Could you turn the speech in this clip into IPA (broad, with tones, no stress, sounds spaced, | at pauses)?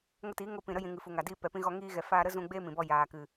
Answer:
ŋ ə˧ t iː˨˦ ŋ o˧ p ĩ˨ ɾ ə˦ j ĩ˨ ŋ ɨ˨ f u˨ ŋ a˨ d iː˧ p ɛ˨ p ĩ˧ ɣ ɔ˧ ŋ iː˧ ɣ ɛ˨ f aː˧ ɾ ə˦ z ũ˧ ɡ͡b eː˦ m ĩ˨ b ɔ˧ j aː˨ k ɨ˨